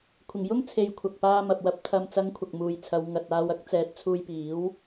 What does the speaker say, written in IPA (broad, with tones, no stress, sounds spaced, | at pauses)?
kʷʰ ɪ˨˩ ŋ j ʊ˥ ŋ t͡sʰ e˨ j kʷʰ ɐ˨ k̚ p aː˧ m ɐ˨ p̚ w ɐ˧ p̚ t̪ʰ ɐ˨ m t͡s ɐ˨˧ ŋ kʷʰ ɐ˨ k̚ m uː˨ j t͡sʰ ɐ˨˧ w ŋ ɐ˨ t̚ aː˧ w ɐ˥ k̚ t͡s ɛː˨ t̚ t͡sʰ uː˧ j p iː˨˥ w